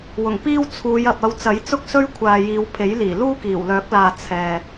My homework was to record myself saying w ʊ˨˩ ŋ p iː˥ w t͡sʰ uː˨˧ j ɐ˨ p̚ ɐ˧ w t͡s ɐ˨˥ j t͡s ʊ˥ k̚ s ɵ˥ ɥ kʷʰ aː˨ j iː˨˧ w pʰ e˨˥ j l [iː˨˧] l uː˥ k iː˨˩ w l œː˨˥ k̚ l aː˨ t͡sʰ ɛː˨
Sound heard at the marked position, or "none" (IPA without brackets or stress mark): iː˨˩